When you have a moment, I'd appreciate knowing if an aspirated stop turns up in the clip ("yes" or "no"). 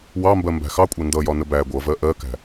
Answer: no